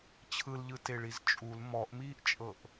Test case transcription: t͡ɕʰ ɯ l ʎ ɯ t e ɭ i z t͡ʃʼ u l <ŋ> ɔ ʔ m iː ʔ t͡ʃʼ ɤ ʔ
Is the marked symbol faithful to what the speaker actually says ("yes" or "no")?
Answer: no